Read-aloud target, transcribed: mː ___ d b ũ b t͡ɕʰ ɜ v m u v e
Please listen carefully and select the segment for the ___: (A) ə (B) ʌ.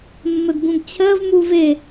A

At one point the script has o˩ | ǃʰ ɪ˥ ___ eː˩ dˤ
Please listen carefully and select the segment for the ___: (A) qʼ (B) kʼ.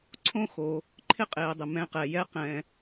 A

